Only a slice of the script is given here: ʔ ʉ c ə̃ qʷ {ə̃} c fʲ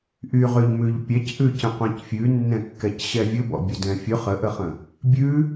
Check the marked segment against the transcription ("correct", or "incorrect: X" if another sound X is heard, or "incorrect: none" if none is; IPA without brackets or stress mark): incorrect: ɛ̃